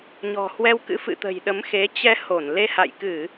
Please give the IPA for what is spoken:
ɲɔ̤˨˩hwɛ˧wkɨ̰˧˥ fɨ̰˧˨ t̪ə̤˨˩jɗə˨˦mxe˨˦ t͡ɕɛ˧ ho˧˩n le˧ha̰˧˨jkɨ˧˩˨

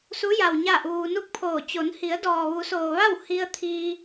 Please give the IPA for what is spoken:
su˧˥ja˩w ɲa˥˨ʔuː˧ nu˥˨k̚pʰoː˧˩ t͡ɕo˩˧nhi˩˧ə̯ dɔː˩ʋu˩˧soː˩ʋa˥˨w hi˧ə̯t̪ʰiː˧

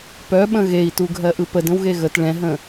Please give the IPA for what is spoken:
pœɓə̃ ɣei̯tu ɡʱɜʔɯpəd ə̃wɣeɣət ɭɛ̃ɦə̃

